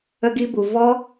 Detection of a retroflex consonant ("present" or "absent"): absent